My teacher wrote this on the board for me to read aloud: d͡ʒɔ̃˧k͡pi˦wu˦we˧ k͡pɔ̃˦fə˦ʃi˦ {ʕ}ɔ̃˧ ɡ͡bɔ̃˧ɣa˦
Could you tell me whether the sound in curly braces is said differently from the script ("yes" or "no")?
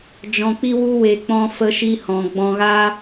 yes